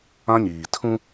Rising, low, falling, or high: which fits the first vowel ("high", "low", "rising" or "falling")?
high